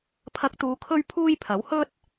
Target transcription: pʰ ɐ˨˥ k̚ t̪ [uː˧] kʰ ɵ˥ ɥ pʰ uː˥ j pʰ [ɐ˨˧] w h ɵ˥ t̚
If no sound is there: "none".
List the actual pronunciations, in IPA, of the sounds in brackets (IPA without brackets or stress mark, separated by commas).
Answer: uː˨˧, ɐ˨˥